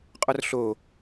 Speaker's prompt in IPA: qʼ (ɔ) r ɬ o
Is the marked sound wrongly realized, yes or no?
no